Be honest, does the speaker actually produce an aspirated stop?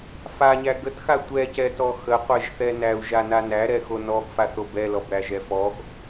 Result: no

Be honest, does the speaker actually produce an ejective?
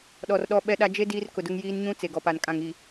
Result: yes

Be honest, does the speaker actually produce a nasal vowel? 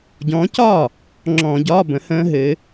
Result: yes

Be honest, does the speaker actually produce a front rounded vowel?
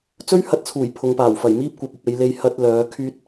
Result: yes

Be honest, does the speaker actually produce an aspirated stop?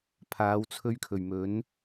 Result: yes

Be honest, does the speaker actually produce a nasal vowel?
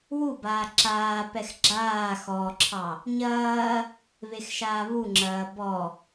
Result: no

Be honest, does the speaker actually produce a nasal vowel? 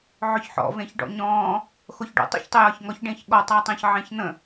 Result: yes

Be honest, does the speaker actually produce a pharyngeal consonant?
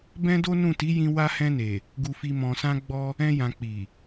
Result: no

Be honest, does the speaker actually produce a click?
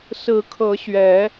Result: no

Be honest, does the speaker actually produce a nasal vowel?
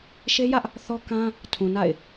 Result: yes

